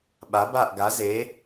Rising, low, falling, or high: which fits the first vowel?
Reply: rising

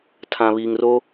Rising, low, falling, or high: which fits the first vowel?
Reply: low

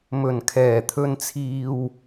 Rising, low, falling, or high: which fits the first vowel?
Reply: low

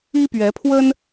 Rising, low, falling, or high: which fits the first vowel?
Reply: high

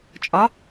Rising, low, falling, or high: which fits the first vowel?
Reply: rising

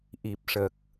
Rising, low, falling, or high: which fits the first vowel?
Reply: low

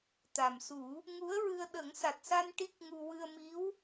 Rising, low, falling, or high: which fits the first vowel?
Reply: low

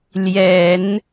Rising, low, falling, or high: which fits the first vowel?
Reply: low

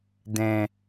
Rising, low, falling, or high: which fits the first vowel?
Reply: low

